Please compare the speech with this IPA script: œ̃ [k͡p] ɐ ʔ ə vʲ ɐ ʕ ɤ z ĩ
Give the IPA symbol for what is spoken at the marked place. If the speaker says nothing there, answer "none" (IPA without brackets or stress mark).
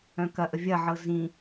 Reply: k